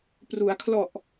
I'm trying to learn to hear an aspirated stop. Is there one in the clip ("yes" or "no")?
yes